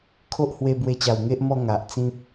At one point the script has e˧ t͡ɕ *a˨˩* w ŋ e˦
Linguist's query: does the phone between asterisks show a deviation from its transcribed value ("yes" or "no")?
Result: no